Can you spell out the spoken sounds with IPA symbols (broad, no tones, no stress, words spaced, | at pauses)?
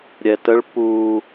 ɾʲɛtəɭ pu